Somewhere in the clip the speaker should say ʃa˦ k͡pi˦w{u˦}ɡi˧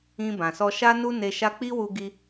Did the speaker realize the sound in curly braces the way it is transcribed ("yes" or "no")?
no